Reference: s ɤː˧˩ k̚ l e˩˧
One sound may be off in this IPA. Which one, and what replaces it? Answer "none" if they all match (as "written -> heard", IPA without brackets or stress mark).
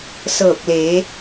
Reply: none